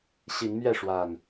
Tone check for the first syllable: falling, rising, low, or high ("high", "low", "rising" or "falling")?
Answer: rising